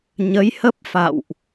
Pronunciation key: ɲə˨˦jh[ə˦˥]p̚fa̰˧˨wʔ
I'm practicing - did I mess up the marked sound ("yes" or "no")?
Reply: no